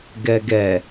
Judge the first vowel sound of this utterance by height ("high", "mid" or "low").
mid